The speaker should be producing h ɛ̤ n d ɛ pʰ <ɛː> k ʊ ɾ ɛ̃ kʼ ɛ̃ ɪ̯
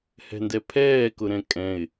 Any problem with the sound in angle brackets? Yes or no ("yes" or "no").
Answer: no